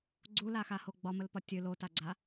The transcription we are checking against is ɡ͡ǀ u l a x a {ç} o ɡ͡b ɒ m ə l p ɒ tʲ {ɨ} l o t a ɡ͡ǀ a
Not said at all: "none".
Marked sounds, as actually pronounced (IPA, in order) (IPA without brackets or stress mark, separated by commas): h, ɨ